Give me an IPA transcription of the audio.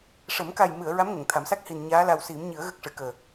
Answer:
ʂ ə˨˩˦ m k a˨˩ j m ɨ˨˩˨ ə̯ ɹ a˧˥ m ŋ ə˨˩˨ ŋ t̪ʰ a˨˩˦ m s a˦˥ k̚ h i˨˩ n ɲ aː˧˥ l a˨˩ w s i˨˩˦ m ɲ ɨ˨˩˦ ə̯ ɣ ə˦˥ k̚ ʂ ɨ˨˩˨ k əː˨˩

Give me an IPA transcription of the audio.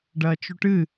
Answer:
ɖ ɐː t͡ʃ u ʈ ɨ

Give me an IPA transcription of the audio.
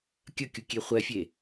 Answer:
kʲ ɐ kʲ u kʲ e χʷ ɛ fʲ e

